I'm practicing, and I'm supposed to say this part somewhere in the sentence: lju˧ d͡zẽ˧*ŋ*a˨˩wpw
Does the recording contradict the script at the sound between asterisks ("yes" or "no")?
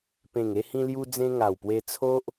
no